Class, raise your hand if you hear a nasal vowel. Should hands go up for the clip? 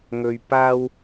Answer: no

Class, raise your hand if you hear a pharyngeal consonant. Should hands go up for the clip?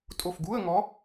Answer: no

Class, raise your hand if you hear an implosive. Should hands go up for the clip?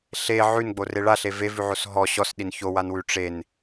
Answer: yes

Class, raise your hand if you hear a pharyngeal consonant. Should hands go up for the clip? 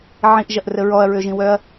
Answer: yes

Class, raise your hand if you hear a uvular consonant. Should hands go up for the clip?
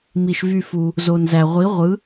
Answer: yes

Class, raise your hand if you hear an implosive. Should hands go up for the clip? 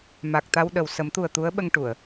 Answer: yes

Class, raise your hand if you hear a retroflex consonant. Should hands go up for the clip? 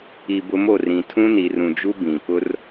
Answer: no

